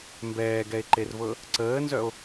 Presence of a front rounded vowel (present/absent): present